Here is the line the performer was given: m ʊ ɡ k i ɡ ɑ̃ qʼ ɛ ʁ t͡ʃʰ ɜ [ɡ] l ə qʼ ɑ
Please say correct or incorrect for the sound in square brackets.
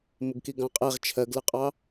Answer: correct